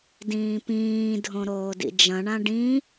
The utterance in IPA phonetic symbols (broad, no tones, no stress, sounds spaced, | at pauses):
d ĩː p ĩː dʱ õ ɾ oː d ḭ d͡ʒ ɐ̃ ɳ ã ɖ ĩ